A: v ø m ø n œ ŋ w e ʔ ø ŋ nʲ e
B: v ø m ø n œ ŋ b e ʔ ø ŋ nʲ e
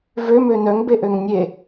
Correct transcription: B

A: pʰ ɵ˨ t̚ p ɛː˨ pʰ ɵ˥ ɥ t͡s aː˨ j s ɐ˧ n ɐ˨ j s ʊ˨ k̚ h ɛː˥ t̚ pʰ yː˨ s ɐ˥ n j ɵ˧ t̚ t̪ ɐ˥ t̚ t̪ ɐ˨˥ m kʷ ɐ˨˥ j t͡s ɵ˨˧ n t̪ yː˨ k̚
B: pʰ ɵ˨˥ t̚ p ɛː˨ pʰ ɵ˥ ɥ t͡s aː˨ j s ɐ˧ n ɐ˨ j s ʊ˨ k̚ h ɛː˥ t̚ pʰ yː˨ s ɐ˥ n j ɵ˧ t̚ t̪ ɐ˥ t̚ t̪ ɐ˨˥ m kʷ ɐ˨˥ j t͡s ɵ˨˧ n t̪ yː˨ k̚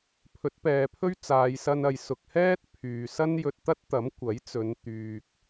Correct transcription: B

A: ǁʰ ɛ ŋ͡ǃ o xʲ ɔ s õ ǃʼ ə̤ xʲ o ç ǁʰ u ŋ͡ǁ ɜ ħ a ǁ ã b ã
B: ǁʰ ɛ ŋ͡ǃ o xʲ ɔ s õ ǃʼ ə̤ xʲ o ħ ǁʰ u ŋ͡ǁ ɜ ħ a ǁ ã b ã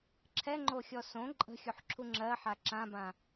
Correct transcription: B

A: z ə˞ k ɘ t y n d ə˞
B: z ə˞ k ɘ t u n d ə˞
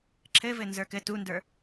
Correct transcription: B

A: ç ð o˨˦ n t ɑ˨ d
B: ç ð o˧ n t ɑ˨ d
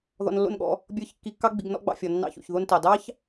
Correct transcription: B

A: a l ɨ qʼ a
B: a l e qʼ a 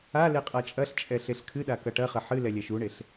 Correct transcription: B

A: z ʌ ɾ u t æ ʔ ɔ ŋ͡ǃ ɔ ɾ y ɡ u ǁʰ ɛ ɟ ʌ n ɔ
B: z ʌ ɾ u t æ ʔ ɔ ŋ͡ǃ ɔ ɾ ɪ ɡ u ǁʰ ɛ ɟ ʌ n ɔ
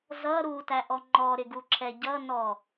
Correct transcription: B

